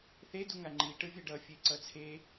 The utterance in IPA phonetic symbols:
θe duŋaŋ͡ǃi ʈɯvʲʌɖʌ fʲeǀʌt͡sʰe

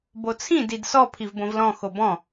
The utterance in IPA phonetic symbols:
bot͡sʰĩ didsɔ pʰivbõvlɔ̃ xobɔ̃

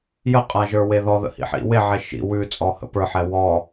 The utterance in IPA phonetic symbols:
jəqʼa ʒə˞weðɔðə̰ hḭħḭweʕɛ ʃḭ wʉ t͡sʼɔhə̰pə˞ħɛ wɔ

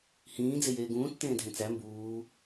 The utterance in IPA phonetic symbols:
hĩː d͡zejeːɡũː tːẽːdʱẽt͡sæ mbuː

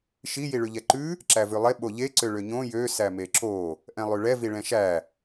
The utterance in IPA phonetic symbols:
ʃi jiɭʉʎɛǃʉ | ǁævʉlˠe ɓoʎe ǀøɭøɲõ jø sæmeǁo | ʔɛ̃lˠyɭɛ viɭɛ̃ʃæ

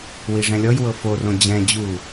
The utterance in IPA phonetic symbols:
wiʐɛ̃lʲɔjwɤ forõ d͡ʑɛ̃d͡ʑu

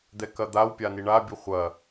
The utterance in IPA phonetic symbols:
d̪ɛkɐd̪aw pʲaniɳa bʲuχʷɐ

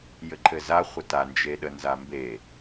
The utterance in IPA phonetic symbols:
jɘǃʰɘza χʷəta nd͡ʒeɗənzambe

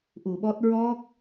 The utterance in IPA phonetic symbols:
ʔu˨˩˨ɓɔ˦˥t̚ ɹɔ˦˥k̚

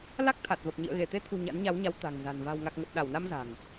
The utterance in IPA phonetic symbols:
la˦˥k̚t̪ʰa˨˩t̚və˨˩p̚ ɲḭ˧˨ə̯ɣe˧˩t̪e˧t̪ʰṳ˨˩ ɲa̰˧˥nɲa˨˦wɲa˨˦w t̪a̤˨˩ŋza̤˨˩n va̤˨˩wŋa˨˩k̚ŋə˨˩t̚ ɗa˧˩wna˧m za̤˨˩ŋ

